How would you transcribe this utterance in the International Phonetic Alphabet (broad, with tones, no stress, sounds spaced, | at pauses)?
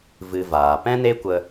v ɨ˧ v aː˨ p ɛ̃˦ n e˦ kʷ ə˧